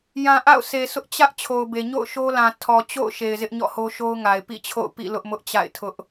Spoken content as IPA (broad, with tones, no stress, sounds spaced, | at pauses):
j ã˨ ʔ a̰˦˨ ʊ̯ s e˨ sʰ ʊ˦ ʔ t͡ɕ ä˦ ʔ t͡ɕʰ o˨ ʊ̯ b e˨ ɲ o̰˦˨ ʊ̯ ʃ o˦ l ã˨ tʰ ɔ˨ t͡ɕ o̰˦˨ ʊ̯ ʃ e˨ ɪ̯ z ɪ˦ ʔ ɲ ɔ̰˦˨ h o˦ ʃ o˦ ʊ̯ ŋ a˨ ɪ̯ p ḭ˦˨ t͡ɕʰ o̰˦˨ ʊ̯ p ḭ˦˨ l ʊ˦ ʔ m ʊ˦ ʔ t͡ɕ a̰˦˨ ɪ̯ tʰ ʊ˦ ʔ